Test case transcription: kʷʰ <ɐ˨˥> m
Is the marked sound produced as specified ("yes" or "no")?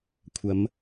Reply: no